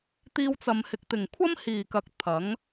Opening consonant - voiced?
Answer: no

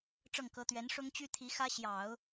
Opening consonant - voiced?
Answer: no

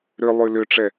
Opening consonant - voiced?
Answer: yes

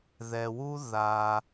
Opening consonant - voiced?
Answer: yes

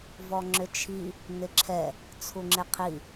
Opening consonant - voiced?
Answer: yes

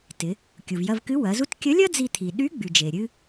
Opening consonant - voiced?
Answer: no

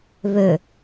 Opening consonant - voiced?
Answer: yes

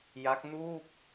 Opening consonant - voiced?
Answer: yes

